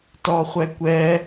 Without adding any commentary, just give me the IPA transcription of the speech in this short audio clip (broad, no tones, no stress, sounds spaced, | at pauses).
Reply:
t ɔː χʷ ɛ kʷ ɛ